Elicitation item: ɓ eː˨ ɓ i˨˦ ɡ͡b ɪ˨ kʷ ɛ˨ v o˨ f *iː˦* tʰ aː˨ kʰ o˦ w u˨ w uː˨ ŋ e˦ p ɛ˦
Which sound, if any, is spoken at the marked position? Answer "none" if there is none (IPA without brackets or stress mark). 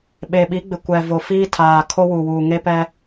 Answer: iː˦